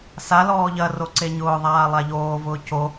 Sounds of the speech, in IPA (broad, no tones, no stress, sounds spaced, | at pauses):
s a l ɔː ʎ ɐ r o ǀ e ɲ ʊː ðˤ aː lˠ a ʎ oː v ʊː c o